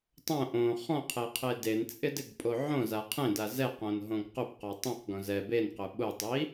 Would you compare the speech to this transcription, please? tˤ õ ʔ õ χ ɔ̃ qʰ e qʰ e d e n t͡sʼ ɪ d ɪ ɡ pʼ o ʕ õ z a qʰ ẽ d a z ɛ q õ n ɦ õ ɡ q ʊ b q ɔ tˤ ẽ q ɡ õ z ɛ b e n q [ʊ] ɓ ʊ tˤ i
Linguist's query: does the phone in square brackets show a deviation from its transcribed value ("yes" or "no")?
no